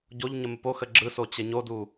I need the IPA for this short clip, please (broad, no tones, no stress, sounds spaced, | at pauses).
ɟ o ʎ ɲ ə m ɘ p o x ə ɡ͡ǁ ɯ s o t͡ɕ ɘ ɲ o d u